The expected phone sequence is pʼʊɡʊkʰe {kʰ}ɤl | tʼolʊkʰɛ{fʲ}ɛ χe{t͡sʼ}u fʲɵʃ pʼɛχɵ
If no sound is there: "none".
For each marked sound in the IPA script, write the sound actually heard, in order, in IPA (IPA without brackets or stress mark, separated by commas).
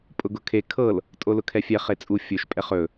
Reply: kʰ, fʲ, t͡sʼ